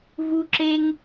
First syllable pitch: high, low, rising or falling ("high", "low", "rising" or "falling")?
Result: high